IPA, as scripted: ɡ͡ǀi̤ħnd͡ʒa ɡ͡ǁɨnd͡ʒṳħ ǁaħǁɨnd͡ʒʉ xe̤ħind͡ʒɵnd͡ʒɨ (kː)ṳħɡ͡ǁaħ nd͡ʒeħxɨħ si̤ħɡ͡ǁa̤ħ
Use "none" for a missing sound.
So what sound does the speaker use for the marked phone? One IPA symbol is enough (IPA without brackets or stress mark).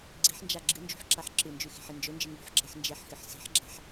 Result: ŋ